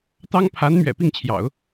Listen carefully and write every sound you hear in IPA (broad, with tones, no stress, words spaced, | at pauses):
t̪ɑ˥ŋpʰa˧˥n mɥɛ̰˨˩pi˥˩ŋt͡ɕʰjɑ̰˨˩˦ʊ̯